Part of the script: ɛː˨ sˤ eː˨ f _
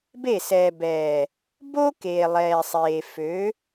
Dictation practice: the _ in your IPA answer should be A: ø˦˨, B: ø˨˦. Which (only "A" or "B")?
B